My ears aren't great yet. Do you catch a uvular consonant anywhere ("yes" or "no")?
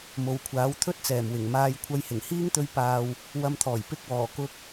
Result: no